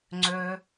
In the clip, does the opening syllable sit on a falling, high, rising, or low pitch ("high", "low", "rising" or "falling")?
high